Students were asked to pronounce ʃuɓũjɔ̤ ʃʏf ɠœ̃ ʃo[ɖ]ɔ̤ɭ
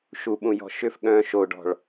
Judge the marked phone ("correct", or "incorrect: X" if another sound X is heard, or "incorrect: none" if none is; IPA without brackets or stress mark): correct